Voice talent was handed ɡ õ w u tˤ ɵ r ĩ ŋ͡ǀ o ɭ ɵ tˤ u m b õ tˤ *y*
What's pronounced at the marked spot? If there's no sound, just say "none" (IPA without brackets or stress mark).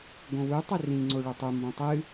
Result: ɨ